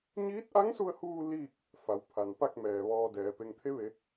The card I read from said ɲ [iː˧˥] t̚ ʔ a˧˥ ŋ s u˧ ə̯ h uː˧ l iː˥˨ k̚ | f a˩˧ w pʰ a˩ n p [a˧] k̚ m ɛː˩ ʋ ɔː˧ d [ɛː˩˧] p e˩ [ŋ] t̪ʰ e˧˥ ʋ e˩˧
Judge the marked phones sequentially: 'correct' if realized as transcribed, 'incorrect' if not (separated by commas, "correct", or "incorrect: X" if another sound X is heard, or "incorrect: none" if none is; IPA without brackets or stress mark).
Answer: correct, incorrect: a˥˨, correct, correct